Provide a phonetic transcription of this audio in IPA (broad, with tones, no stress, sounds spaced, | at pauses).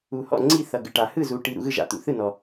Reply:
u˨ h ɔ̰˦˨ ŋ͡ǀ i˦˨ θ ʌ˨ ɡ ɨ˨ ʈ a˨ h ɯ˦˨ z u˨ ʈ i˨ ɾ ṵ˨ ɣ ɯ˦˨ ʒ a̰˨ t̪ ṵ˨ θ ɯ˦˨ n ɔ˨